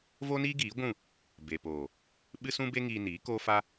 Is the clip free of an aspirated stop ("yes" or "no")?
yes